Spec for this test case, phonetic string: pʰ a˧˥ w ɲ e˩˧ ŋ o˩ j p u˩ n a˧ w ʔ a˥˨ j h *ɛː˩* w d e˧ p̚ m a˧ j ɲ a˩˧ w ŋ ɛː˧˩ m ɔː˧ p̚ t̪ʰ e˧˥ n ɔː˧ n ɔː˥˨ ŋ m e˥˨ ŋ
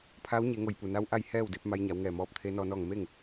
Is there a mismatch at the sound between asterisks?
yes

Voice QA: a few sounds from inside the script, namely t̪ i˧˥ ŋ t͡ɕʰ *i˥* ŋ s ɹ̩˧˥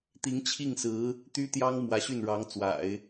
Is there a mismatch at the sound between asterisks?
yes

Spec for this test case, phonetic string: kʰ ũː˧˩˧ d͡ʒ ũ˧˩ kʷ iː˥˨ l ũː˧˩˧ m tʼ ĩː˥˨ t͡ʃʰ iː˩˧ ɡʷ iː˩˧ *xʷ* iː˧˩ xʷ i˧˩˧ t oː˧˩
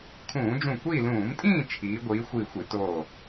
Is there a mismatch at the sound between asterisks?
no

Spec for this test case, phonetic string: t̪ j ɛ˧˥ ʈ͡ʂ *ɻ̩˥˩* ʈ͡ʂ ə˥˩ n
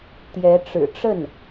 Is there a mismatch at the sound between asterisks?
yes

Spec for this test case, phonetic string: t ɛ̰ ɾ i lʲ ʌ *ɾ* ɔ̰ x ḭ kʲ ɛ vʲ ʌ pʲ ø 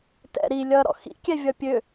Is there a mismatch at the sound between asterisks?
no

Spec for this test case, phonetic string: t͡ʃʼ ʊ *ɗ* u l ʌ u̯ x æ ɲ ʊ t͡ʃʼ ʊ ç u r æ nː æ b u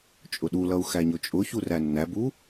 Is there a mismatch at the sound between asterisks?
no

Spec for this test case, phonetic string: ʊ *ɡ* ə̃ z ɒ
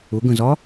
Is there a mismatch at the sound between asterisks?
no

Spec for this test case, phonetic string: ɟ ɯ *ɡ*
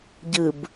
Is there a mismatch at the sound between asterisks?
yes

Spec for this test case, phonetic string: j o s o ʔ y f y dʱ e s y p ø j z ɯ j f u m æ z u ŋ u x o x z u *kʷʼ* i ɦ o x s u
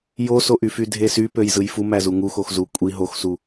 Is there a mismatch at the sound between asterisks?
no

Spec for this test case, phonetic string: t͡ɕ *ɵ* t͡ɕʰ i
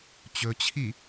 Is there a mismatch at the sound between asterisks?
no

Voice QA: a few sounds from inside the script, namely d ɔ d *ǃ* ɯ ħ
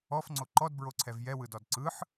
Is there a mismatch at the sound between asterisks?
yes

